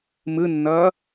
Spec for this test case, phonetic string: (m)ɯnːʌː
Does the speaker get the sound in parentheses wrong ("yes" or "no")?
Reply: no